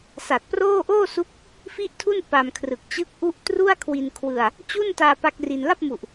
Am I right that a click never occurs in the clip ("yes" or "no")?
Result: yes